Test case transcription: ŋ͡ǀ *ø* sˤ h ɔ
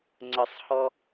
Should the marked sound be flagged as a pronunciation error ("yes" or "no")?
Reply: yes